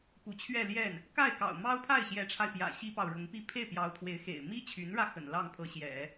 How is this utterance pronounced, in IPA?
p u˧˥ t͡ɕʰ ɥ ɛ˥˧ l j ɛ˥˩ n | k a˥˩ ɪ̯ k ɑ̰˨˩ ʊ̯ m ɑ˥ ʊ̯ pʰ a˥˩ ɪ̯ ɕ j ɛ˧˥ ʈ͡ʂʰ a˧ ɪ̯ p j ä̰˨˩ ɕ i˥ p ɑ˨ ʊ̯ ɻ ʊ˧˥ ŋ p i˥˧ pʰ e˥˩ ɪ̯ p j ɑ˧˥ ʊ̯ pʰ w e˧˥ ɪ̯ x ḛ˨˩ ɪ̯ m i˥ t͡ɕʰ y˧˥ n ɻ ä˧ x ə̰˨˩ n l ɑ˥˩ ŋ pʰ ɤ˧˥ ɕ j ɛ̰˨˩˦

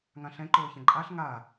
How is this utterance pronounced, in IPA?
ŋ ã ɬ ɛ̃ ǃ oː ç ɛ̃ ǃʼ a ɬ ŋ aː

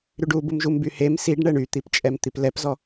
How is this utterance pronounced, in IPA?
ɾ y ɖ u b u m ʒ u m b y h e m s i ɖ ɳ ɛ ɳ y t̪ i p t͡ʃʼ ɛ m t̪ i p l ɛ p z ɔ

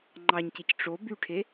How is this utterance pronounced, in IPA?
ŋ͡ǃ ɑ ɲ c e c ʈ͡ʂ o b y ʈʰ e

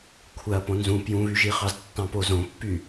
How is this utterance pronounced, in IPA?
kʷʰ æ ɐ̯ p õ n z ũ p j ũ β y ʒ i χ ɑ z tː ɑ̃ p o z õ pː y

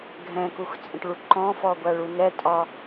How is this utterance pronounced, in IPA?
ɡʱ ɛ̃ k u x t͡sʼ ə̃ ʈ ɭ u ǃ ɔ̃ f ɔ ɡʷ æ ɭ u n ɛ tʼ ɒ

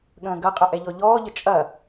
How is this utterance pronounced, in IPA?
ɠ ə̃ː ɡ ɐ qʼ ə ʔ ɛ ʎ ɔ ʎ ɔː ʎ ə t͡ʃʼ ɐ

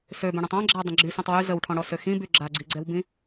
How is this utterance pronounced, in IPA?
s ø b œ̃ ɽ œ̃ tˤ ɔ̃ ɡ͡ǁ a ɐ̯ dˤ ə̃ ɡ͡ǁ y s œ̃ tˤ w y z ə w ʈʰ ɔ̃ ɽ ɔ s ø x ĩ b y ɡ͡ǁ a ɡ͡ǀ i ɡ͡ǀ ɛ w b ĩ

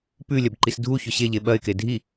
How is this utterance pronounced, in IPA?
p ʉ lʲ ɐ b ǃ i s dʱ u ç ɵ ɕ e ʎ e ɓ ɐ ɪ̯ k e dʱ i

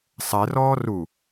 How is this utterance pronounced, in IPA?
sˤ ɛ r ɔː r u

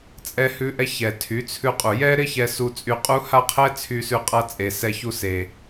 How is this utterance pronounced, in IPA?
t͡sʼ ɛ˧ h ʉ˧ ʔ ɛ˧ ç ɛ˨ tʰ y˨˦ t͡sʰ ʉ˧ qʼ u˨ j ɛ˦ ɾ ɪ˦ ç ɛ˧ s u˧ t͡sʼ y˧ qʼ u˦ h a˦ qʰ ɛ˦ t͡sʰ y˧ s ʉ˧ qʼ a˧ t͡sʼ e˨ s ɛ˧ ç u˧ s e˨

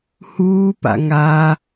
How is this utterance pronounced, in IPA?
h uː p a̰ ŋ aː

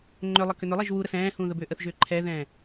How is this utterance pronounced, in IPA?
ŋ͡ǃ ʏ lˠ ə k ʏ n ʏ lˠ ɛ ʒ w u ɾ ə s ɛ̃ː h ũ ð ə b ʏː ʔ ə θ ʒ ʏː ǃʰ ɛ ð ɛ̃ː

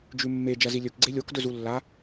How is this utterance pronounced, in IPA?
d͡ʒ ʉ mː e d͡ʒ ɐ z i lʲ ɵ k ɡ͡ǀ e lʲ o k d ɵ z u lː a

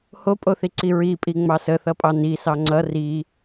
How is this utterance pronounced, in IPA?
h o pʼ o θ i ǀ i ɹ i pʼ i ŋ͡m ɑ s ə θ ʌ pʼ ɑ n i s ɑ ŋ͡ǀ ʌ r i

